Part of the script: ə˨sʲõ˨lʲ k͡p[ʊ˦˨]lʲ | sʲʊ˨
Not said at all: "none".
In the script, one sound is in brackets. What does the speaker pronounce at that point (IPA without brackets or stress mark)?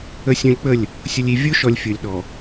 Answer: ə˦˨